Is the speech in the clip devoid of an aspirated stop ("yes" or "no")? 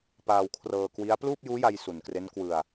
no